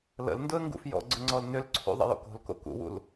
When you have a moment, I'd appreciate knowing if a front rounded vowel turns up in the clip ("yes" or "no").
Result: yes